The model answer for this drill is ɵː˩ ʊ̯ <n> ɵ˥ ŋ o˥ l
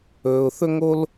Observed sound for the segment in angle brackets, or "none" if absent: θ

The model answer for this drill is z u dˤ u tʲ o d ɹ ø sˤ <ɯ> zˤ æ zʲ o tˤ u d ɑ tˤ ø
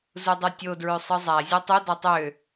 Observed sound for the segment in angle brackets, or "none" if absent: ɯ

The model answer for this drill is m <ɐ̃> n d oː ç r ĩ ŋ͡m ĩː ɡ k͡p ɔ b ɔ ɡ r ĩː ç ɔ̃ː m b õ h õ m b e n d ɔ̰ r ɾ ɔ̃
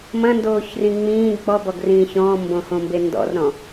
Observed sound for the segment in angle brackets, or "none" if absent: ɐ̃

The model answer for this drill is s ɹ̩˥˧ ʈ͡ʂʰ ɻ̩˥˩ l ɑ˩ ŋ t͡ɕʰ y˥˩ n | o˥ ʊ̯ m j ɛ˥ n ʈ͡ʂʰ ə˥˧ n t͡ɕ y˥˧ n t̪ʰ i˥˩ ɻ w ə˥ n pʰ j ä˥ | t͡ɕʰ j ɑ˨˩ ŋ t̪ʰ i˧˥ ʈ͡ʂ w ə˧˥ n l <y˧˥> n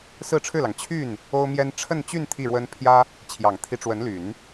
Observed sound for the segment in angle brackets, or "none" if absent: y˨˩˦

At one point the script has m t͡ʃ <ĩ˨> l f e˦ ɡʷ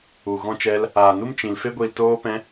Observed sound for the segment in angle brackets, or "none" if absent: ĩ˧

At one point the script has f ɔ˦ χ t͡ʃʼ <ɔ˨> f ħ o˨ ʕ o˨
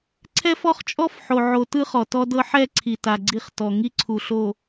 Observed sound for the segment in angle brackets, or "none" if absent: ɔ˦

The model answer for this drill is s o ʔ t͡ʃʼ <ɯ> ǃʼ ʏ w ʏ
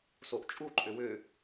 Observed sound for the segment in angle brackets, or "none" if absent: u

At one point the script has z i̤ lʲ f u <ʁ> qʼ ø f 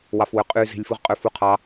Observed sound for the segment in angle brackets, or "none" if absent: ʁ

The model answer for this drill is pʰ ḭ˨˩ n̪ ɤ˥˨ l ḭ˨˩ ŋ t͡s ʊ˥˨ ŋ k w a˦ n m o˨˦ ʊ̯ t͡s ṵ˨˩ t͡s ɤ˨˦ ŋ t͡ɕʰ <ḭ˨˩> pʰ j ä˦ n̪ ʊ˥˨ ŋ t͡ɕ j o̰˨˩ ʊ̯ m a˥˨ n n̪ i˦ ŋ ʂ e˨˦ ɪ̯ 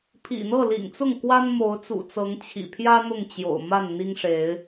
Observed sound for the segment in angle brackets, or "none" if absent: ḭ˨˩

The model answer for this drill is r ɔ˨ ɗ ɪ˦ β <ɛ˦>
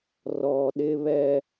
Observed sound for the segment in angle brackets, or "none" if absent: ɛ˦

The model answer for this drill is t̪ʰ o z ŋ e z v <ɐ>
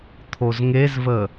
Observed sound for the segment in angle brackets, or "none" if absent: ə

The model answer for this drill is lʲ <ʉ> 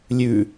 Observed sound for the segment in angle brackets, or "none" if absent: ʉ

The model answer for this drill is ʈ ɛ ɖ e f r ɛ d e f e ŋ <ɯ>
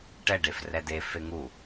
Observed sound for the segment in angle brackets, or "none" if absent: u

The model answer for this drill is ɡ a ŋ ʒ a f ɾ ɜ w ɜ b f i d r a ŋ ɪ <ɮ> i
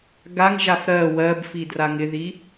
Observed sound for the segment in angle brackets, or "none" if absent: ð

